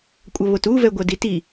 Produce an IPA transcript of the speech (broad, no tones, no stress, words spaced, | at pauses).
kʷʼʌβotu vɛɡʷʌditi